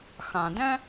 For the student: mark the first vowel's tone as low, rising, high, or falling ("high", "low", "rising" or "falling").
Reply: low